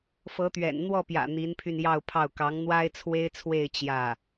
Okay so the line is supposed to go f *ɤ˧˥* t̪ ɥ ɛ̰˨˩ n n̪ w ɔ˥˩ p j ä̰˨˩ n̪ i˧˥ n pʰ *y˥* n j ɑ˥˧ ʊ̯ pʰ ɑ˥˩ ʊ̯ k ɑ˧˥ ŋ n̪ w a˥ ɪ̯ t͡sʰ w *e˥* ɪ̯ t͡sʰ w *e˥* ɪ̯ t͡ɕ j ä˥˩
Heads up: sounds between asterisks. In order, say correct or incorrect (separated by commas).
correct, incorrect, correct, incorrect